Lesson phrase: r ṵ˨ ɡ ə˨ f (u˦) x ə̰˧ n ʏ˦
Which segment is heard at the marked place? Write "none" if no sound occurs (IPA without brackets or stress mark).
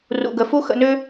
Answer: u˦